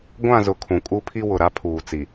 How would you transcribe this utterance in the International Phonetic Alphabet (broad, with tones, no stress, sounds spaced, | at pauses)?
ɡʷ ã˦˨ z ʊ˨ kʰ ũ˨ kʼ u˦ pʰ i˦ w ʊ˨ ɾ a˦ pʰ uː˨ t͡s i˨